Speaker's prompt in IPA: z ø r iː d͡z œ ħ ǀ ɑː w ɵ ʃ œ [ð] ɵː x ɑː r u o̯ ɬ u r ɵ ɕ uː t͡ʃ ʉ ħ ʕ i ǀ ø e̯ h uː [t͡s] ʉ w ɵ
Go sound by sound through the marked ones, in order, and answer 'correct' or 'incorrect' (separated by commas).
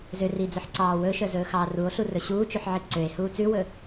incorrect, correct